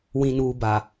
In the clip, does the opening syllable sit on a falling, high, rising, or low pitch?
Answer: low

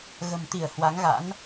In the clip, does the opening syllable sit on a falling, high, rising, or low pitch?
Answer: low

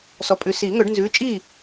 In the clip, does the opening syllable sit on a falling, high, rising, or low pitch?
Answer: low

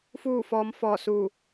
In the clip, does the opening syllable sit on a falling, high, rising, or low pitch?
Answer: falling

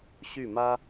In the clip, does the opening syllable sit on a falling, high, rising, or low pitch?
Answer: falling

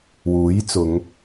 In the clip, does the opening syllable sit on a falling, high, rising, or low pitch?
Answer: rising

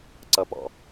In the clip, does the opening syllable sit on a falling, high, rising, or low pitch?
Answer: rising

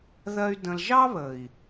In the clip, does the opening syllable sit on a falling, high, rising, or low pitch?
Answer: high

